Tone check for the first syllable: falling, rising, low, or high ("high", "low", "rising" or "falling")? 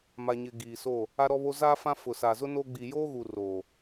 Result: low